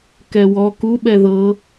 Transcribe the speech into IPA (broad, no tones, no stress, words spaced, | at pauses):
kɛwɔ kuɓɛ ðɤ